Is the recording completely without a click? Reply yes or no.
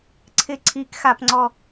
no